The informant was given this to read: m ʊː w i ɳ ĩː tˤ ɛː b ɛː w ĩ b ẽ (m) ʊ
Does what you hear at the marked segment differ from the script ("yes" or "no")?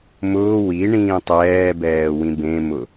no